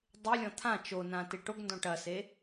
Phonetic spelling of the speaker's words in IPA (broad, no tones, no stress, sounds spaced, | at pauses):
dˤ e lʲ ɔ̃ t̪ʰ ã t͡ʃ o n ã t e ʈ o ɡ n d ɔ̃ ʈ ɐ s e